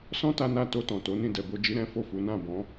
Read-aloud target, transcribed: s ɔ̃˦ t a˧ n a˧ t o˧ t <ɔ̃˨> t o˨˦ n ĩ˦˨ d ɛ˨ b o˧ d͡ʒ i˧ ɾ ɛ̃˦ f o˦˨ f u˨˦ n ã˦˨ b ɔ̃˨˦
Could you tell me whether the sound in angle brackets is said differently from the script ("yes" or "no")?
no